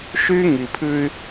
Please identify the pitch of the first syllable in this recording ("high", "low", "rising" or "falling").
high